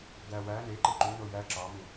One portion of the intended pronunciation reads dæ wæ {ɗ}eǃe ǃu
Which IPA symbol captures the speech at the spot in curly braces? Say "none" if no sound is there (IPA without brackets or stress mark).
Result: n